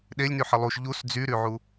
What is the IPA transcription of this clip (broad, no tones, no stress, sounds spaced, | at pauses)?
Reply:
ɗ e lʲ n y ħ ə lˠ u ʃ ʎ u s d͡z y ɾ y ʕ u